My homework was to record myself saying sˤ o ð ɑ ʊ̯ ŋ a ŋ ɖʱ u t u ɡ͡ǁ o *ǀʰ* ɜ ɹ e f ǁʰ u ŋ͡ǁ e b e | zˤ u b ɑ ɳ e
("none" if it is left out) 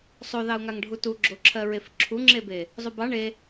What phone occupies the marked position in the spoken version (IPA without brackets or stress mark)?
ǁʰ